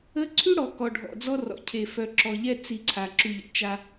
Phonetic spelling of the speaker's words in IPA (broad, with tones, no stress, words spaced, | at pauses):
ə˦ ǀʰy˦ɽɔ˨kɔ˨ ɖʱɔ̰˨d͡zɔ˦rɔ̰˨ cʰe˨fœ˨ǁɔ˨ ʎɛ˦ t͡si˨ ǀʰa˨ǁy˨ʎə̰˨ t͡ʃa˦